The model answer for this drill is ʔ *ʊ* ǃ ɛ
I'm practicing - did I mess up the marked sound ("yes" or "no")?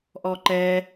yes